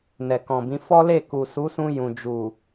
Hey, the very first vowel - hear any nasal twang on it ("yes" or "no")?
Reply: no